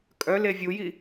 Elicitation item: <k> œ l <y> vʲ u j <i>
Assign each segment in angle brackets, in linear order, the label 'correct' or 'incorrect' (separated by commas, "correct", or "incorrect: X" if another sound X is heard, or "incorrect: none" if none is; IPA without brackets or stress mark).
incorrect: kʼ, incorrect: e, correct